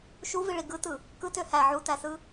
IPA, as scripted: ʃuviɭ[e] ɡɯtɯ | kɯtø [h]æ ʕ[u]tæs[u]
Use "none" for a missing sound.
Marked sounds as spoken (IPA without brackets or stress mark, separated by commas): i, h, u, ɯ